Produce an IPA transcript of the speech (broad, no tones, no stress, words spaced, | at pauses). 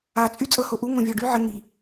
at͡sʼy t͡sʼɤhoʔu ŋõvʲɔɖy ʕɘ ŋi